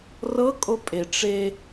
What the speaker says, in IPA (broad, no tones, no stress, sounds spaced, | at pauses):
r ɤ kʼ o pʼ e ʈ͡ʂ e